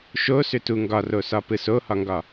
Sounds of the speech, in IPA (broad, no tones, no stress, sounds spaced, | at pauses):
ʃ o s ʏ t u ŋ ɡ ɒ r o s ɒ p ɯ s o h ɒ ŋ ɡ ɒ